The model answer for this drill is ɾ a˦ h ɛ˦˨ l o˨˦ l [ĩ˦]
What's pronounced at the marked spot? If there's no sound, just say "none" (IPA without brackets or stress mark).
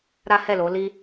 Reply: i˦